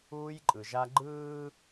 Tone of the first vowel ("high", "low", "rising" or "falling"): high